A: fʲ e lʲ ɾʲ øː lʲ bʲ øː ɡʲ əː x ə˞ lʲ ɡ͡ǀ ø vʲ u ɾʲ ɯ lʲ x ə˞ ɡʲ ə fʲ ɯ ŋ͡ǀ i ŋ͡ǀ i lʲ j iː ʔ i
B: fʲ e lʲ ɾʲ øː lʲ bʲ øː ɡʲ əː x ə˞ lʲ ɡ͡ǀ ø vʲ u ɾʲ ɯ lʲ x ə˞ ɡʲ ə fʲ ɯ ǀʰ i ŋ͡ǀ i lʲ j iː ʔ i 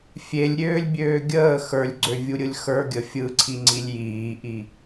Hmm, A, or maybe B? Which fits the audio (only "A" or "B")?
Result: B